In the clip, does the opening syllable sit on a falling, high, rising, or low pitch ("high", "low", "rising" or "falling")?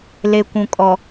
low